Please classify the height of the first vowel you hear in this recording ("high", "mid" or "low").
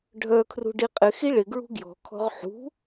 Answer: mid